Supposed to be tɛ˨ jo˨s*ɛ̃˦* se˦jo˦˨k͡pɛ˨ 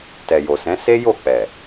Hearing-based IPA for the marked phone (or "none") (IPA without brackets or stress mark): ɛ̃˨˦